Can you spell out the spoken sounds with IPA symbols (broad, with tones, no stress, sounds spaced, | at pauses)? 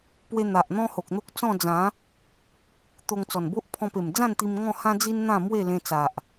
p w e˧ n̪ a˨ ʔ n̪ ɔ̃˦ h o˨ k̚ n̪ o˦ k̚ t͡s ɔ̃˥˧ d͡z ã˨˦ | t̪ o˧ ŋ t͡s ɔ˨˩ n b o˦ ʔ pʰ ɔ̃˧ p e˨˩ m d͡z ã˥˧ n t̪ i˧ m ŋ ɔ̃˥˧ h ã˦ d͡z i˦ n n̪ ã˥˧ m w e˥˧ l ẽ˧ t͡s a˨ ʔ